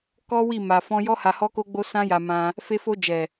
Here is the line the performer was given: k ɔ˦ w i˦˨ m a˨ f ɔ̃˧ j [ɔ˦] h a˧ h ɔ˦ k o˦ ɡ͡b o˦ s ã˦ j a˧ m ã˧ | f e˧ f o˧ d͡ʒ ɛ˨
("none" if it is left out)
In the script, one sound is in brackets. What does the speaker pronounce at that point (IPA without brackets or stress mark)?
ɔ˦